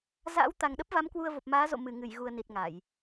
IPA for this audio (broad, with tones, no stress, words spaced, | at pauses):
za̰ː˧˥wt̪a˨˩ŋɗə˦˥p̚va˨˦m kwu˧ə̯vo˨˩p̚maː˨˦ zo̰˧˨ mɨ˧˩ ŋɨ˧˩jɣu˨˩ə̯ ni˨˩t̚ŋa˧˩˨j